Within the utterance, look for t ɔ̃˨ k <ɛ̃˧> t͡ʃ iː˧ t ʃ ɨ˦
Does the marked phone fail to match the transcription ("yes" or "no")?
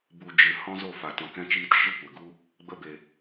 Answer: no